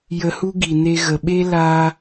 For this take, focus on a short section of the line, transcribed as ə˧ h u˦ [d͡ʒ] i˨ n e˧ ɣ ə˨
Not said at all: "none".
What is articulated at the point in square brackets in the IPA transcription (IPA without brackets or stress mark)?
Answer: ɡ